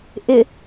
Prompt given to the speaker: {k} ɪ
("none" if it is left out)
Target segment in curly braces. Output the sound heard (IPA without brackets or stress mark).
ʔ